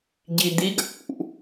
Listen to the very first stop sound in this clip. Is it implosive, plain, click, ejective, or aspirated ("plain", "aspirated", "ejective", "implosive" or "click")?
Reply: plain